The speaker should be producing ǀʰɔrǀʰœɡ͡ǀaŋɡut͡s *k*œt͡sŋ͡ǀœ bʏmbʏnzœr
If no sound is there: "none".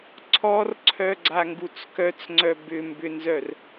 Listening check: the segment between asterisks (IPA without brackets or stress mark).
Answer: k